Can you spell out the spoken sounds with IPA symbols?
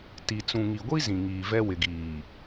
t i˨ t͡s ũ˨ ŋ i˨ ɡʷ i˦ z ĩ˨ ŋ iː˨ v ɛ˦ w ɪ˨ ɡ iː˨

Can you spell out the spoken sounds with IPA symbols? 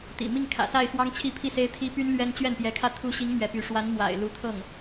t̪ ḭ˨˩ m i˥˩ ŋ kʰ ä̰˨˩ s a˥˩ ɪ̯ x w ɑ˥ ŋ t͡ɕʰ i˥˧ pʰ i˥˩ s e˥ ɪ̯ t̪ʰ i˥ p y˥ n l ɥ ɛ˥ n t͡ɕ ɥ ɛ˥˩ n p j ɛ˧˥ kʰ ä˥˩ t̪ʰ u˧˥ ɕ i˧˥ ŋ m ɥ ɛ˧˥ p y˧˥ ʂ w a˧˥ n m w a̰˨˩ ɪ̯ l u˧˥ t̪ʰ ɤ˥˩ ŋ

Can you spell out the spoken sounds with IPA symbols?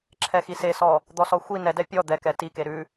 ǁʰ ɛ x i s e s ɔ | d̪ ɔ s ɔ xʷ i n ɛ d ɛ pʲ ɔ d̪ ɛ k ɛ t i k e ɾ ʉ

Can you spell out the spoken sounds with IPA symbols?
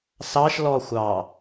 s ɑ ʃ l ɔ xʷ ɑ

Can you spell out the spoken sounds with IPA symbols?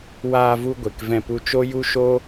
w aː˧ v u˧ ɡʷ e˨ k v ɛ̃˧ p u˧ t͡ʃ o˦ j u˦ ʃ o˦

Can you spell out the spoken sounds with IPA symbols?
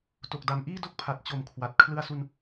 t o˨˩ k̚ d a˨˩ m ʔ iː˥˩ d o˥˩ k̚ pʰ a˨˩ t̚ t͡ɕ o˨˩ m kʰ w a˨˩ t̚ kʰ l ɯ˧ a̯ s u˧ n

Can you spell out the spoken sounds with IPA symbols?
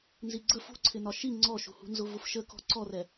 n z i ɡ͡ǀ ə f ṳ ǀʰ ɪ n ɒ ʃ i ŋ͡ǀ ɔ ʃ ṳ h ṳ n z ʊ v ʊ f ʃ ə k ɔ̤ ǀ ɔ r ɛ

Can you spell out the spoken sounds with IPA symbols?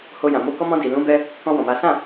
h o˧ j ã˨ m o˧ k ɔ˧ m ɔ̃˧ d i˨ l ũ˨˦ b ɛ˧ | k ɔ̃˧ w ɔ̃˨ m a˨˦ s ã˦˨

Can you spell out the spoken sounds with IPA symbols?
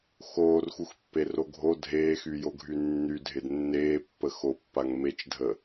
x oː r x u x pː e r o ɡʱ o dʱ eː x y j o ɡʱ y nː y dʱ ɪ d nː eː pː ə x o pː a ŋ m e t͡ʃ dʱ ə

